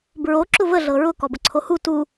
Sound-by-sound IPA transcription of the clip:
b ɹ o ǁ ʊ v ə ɮ ɤ ɹ ʊ k ɔ b ə ǀʰ o h u t u

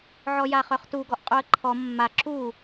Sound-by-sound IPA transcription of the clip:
ʕ ɔ j a χ œ χ t u ɡ ɔ ʔ qʼ u ə̯ ǃʰ ɔ mː a ǁ u

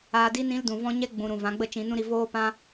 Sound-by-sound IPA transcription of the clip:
aː˧ d i˦ n ĩ˦ l d ũ˨ v ɔ̃˦ ɲ ɛ˦ ɡ͡b ũ˨ ɾ ũ˨ v ã˨˦ ɡ͡b ə˦ t͡ʃ ĩ˨˦ n ũ˦ ɾ i˧ v oː˦ p ã˦

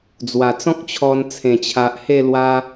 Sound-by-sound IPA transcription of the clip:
d͡z w a˨˩ t͡s ɔ̃˦ k̚ t͡ɕʰ ɔ˧ n t͡sʰ ẽ˨˩ t͡ɕʰ a˨ ʔ h e˥˧ l w a˧

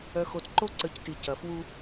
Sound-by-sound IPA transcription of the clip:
œ˨ x o˨ t ǃ o˦ ǀ ə˨˦ c t i˨ c ɐ˨ f w u˦

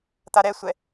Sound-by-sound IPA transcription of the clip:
t̪ a ɾ ɛ sʷ ɛ

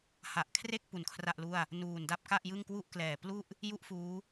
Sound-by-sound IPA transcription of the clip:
h a˨˩ ʔ kʰ r e˥˩ k̚ p u˩˦ n kʰ r a˥˩ ʔ l u˥˩ a̯ | n uː˨˩ n d a˥˩ p̚ k a˥˩ ʔ j ɯ˥˩ ŋ k w u˥˩ ʔ k l ɛː˨˩ p l u˥˩ ʔ | j u˥˩ ʔ f uː˦˥

